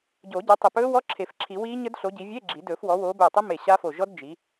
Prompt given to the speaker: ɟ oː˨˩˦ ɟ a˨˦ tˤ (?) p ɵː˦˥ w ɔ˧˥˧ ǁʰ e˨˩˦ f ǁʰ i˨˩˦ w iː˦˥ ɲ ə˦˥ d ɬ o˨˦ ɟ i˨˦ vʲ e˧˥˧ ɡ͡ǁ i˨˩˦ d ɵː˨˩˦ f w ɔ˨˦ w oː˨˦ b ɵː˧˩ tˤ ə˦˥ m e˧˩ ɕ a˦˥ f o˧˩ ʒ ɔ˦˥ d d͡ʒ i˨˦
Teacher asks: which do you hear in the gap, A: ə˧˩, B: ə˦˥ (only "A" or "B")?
A